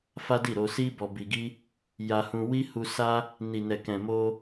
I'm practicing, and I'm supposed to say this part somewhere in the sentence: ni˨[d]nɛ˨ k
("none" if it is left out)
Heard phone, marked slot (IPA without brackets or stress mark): none